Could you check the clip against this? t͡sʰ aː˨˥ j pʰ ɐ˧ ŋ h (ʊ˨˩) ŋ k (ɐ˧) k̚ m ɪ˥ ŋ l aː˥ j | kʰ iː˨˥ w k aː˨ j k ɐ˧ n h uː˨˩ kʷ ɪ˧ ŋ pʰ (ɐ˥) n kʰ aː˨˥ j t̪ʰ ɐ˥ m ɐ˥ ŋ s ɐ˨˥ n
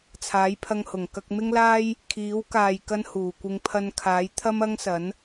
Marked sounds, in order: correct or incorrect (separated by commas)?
correct, correct, incorrect